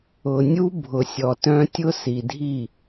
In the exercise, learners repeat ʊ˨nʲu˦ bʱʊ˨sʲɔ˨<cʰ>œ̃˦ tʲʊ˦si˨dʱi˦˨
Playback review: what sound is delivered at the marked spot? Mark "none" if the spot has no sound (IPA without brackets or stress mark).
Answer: t